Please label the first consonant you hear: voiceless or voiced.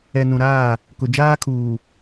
voiced